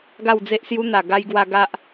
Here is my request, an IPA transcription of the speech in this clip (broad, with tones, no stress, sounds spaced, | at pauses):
ɡ a˥˧ w d͡z e˦ ʔ s j u˦ n̪ a˨˩ ɡ a˧ j ɡ w a˧ ɡ a˦ ʔ